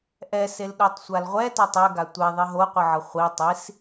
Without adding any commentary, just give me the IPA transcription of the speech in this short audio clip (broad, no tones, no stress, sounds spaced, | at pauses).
ʔ ɛ s e l ɗ o tˤ sʷ a l ʁʷ ɛ t ʌ tˤ ɛ ɡ a tʷ e ðˤ i ɦ o qʷ ɯ ʕ ʌ χʷ i tˤ i s